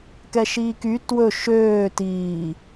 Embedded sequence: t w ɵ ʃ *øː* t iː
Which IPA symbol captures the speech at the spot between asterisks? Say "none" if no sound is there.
øː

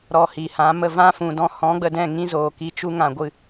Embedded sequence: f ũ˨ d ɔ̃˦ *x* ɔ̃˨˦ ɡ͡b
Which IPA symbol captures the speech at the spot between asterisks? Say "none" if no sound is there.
h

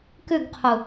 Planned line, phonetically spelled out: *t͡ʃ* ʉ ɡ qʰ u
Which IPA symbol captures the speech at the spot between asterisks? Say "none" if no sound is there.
k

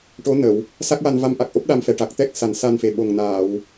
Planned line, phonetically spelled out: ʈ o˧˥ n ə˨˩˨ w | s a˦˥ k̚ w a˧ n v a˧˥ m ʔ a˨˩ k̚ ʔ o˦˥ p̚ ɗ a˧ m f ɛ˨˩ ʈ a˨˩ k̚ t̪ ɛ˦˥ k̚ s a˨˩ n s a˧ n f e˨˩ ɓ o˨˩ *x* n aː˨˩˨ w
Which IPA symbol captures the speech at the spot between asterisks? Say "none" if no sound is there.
ŋ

